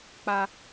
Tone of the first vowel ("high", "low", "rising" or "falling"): high